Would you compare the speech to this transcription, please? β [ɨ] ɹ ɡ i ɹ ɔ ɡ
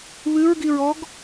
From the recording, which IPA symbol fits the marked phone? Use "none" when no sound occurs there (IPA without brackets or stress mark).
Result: ɨ